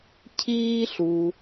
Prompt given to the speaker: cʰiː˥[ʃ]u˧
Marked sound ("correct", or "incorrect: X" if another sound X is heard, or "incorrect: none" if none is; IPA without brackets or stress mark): incorrect: ɬ